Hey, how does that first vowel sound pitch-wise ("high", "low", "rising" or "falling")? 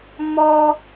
high